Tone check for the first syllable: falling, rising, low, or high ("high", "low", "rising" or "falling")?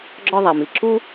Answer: high